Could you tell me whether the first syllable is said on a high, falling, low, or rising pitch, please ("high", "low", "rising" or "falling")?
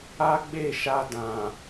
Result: high